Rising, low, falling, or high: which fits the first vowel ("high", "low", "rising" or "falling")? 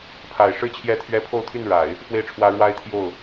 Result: low